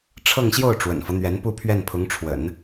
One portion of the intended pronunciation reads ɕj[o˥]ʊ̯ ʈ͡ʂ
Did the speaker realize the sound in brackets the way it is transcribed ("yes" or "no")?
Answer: no